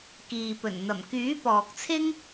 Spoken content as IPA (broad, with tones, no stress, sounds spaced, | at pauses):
k iː˨ p ɵ˨˩ n n̪ ɐ˨˩ m k yː˨˥ p ɔː˨ k̚ t͡sʰ ɪ˥ ŋ